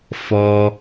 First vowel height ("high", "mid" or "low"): mid